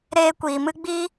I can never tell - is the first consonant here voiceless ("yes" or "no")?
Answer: no